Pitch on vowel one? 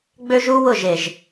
high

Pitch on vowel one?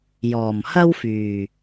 low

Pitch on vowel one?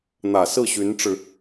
low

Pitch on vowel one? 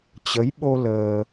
rising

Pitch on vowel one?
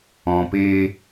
low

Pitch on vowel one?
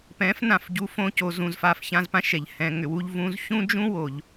rising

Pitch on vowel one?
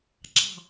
falling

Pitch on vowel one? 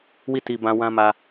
falling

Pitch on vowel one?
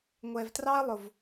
low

